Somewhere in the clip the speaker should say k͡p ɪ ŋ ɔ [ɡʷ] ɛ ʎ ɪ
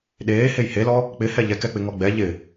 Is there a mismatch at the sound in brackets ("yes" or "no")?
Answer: yes